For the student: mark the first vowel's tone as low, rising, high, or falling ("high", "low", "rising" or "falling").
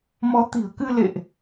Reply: rising